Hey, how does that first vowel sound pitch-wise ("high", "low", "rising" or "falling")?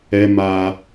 high